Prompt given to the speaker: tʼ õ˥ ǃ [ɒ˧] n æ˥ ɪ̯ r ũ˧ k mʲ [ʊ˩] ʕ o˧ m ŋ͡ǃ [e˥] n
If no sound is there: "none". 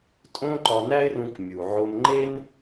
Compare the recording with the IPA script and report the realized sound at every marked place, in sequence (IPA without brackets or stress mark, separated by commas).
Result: ɒ˧, u˩, e˥